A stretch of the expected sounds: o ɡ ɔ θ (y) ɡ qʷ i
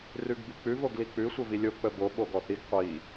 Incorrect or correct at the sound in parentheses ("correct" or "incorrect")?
incorrect